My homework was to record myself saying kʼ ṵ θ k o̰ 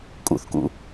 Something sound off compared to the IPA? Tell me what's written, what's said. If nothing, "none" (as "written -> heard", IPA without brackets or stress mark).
o̰ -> ṵ